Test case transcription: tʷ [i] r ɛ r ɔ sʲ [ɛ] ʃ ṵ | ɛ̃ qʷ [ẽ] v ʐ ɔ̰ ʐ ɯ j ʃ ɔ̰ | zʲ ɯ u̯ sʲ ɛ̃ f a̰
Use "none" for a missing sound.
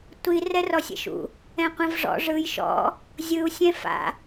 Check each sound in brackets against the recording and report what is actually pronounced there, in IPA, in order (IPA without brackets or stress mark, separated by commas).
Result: i, ɛ̰, ẽ